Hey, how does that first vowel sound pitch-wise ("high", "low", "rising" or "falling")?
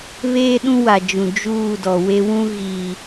high